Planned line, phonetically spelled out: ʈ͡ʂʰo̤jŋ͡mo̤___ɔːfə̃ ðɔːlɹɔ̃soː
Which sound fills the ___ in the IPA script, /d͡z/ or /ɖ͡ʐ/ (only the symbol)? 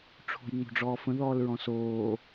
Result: ɖ͡ʐ